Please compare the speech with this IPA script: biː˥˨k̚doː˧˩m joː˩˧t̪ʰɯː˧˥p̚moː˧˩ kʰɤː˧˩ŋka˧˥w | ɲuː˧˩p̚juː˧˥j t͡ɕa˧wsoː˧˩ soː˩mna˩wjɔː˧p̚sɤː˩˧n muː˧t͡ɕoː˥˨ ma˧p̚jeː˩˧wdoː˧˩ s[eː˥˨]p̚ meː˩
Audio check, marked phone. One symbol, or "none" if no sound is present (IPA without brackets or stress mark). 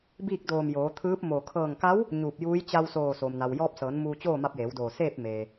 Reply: eː˥˨